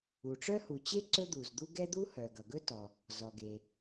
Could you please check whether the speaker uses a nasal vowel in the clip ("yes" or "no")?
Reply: no